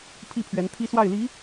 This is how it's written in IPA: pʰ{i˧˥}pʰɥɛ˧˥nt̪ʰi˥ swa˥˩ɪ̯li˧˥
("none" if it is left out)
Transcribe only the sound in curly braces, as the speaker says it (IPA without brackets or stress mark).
i˥˩